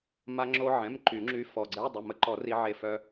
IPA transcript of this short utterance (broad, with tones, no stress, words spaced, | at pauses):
ma˧ŋ͡ǁo˧ʕɛ̃˩˧˩m ǃy˨˩˦ŋ͡ǁy˧˥fɔ˩˧˩ ɡ͡ǀɛ˧˥˧dˤə˩˧˩ mə˧˥ǃɔ˨˩˦ ri˧ʕe˧˩fœ˧